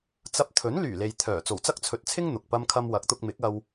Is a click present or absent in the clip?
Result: absent